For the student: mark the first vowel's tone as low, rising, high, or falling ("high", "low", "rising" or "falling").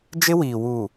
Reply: high